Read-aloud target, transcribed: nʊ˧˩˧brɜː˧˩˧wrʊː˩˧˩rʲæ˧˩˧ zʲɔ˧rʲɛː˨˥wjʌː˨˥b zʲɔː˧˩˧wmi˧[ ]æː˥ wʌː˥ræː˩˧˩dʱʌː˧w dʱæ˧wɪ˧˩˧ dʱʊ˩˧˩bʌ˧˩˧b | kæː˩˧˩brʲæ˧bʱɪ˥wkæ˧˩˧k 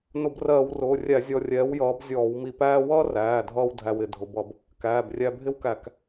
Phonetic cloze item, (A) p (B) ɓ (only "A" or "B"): A